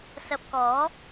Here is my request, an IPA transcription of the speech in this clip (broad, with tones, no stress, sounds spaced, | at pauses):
s ɐ˧ p̚ k ɔː˨˥